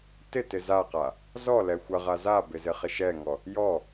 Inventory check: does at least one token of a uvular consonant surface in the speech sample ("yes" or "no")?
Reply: yes